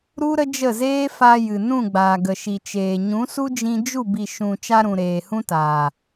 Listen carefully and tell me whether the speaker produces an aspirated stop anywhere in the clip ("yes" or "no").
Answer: no